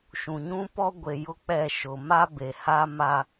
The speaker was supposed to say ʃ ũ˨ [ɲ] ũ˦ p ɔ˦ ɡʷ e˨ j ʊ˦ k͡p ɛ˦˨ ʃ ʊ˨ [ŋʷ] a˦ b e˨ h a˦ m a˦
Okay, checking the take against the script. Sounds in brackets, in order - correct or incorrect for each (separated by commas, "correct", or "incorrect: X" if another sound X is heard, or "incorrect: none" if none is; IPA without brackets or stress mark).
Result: correct, incorrect: m